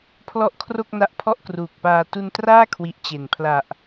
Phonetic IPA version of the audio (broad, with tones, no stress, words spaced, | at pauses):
pʰlɔ˥˩ʔkʰro˥˩k̚na˦˥ʔ pʰɔ˥˩ʔkruː˨˩k̚paː˧ tu˧ntraː˥˩kʰwi˨˩ʔ t͡ɕe˨˩n pʰla˨˩ʔ